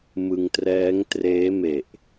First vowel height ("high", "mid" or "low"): high